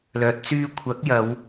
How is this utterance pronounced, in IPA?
l œː˨ t̚ t͡s yː˥ kʷʰ ɐ˨˥ k̚ j ɐ˨˧ w

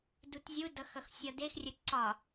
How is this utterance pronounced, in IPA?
d u t zʲ u d ʌ x ʌ x sʲ ɒ d e x rʲ ə ǀ ɒ

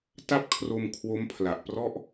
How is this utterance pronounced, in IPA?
t a˥˩ p̚ kʰ r o˧ m kʰ w o˦˥ m pʰ l a˨˩ ʔ p r ɔ˥˩ ʔ

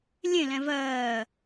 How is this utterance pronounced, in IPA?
lʲ ẽ l ɛ̃ v ɜː

